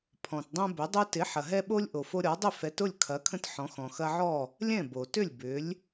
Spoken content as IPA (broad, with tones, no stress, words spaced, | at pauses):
pʰɔ̃˨tdˤõ˦bʏ˨˥dˤu˦ tɪ˨˥ħɐ˨ɦɛ˦ɓo˦lʲ ʔo˨fo˦ɾʲɔ˨˥dˤʏ˥˨ fɛ˨˥tʊ˥˨lʲkʰɐ˨˥kʰə̃˦t ħɔ̃˨˥xɔ̃˨ xɐ˦ʕɔ˥˨ | lʲɛ̃˥˨bo˨tʏ˥˨lʲ bʏ˨˥lʲ